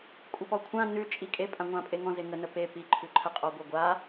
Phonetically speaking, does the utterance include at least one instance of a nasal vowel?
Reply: yes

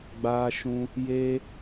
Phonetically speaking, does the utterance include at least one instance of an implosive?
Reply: no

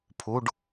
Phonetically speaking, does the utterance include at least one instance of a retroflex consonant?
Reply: yes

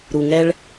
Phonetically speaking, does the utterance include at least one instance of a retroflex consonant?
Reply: yes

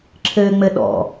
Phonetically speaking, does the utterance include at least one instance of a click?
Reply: yes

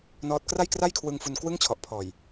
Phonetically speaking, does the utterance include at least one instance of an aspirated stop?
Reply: yes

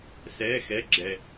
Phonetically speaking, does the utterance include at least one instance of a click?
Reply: yes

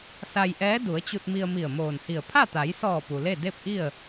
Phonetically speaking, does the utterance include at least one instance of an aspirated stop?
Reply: yes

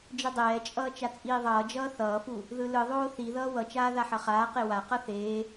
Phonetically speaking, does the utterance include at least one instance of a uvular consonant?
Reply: yes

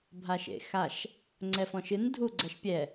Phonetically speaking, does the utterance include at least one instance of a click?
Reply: yes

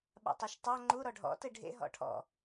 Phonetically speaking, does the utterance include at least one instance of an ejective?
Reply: no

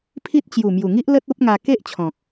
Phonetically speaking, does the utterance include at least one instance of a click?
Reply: no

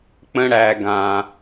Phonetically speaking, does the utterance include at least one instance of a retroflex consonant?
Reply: yes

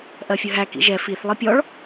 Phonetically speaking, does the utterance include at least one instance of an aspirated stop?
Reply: no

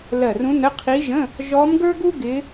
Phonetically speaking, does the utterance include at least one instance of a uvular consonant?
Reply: yes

